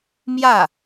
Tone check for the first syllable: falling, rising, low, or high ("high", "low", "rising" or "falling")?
falling